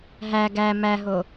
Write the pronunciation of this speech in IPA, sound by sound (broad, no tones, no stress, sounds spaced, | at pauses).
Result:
ɦ æ ɡ æ m æ ɦ o